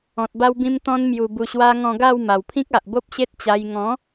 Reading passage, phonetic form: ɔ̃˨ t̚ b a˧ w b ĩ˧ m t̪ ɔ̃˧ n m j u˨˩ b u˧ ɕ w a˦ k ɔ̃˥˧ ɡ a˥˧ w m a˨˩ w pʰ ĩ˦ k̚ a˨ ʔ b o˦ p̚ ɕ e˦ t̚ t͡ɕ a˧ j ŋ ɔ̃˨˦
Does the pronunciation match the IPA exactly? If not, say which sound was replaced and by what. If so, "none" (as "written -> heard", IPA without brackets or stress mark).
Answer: k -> ŋ